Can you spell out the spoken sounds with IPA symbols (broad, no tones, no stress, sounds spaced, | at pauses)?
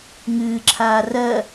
ŋ ɨː ǁʰ aː r ɜ